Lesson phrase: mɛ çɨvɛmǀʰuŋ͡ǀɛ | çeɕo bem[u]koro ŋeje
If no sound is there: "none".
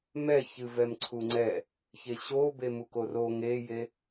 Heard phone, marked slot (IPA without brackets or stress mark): u